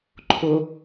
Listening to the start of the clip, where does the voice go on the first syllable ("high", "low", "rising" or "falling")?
low